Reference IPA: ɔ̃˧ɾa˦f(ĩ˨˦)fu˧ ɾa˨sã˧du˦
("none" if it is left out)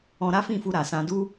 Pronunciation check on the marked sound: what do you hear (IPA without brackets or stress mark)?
ĩ˦˨